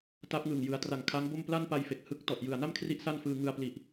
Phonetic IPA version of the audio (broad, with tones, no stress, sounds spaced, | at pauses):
t a˦˥ p̚ ŋ ɯː˨˩ ŋ j ɯ˩˦ a̯ t r a˨˩ ŋ kʰ a˦˥ ŋ b o˥˩ m p l a˥˩ n p a˧ j f e˨˩ k̚ h ɯ˦˥ k̚ t ɔ˨˩ ʔ j ɯ˨˩ a̯ n a˥˩ m kʰ r i˦˥ ʔ s a˥˩ n f ɯː˧ ŋ ɯ˧ a̯ p l i˨˩ ʔ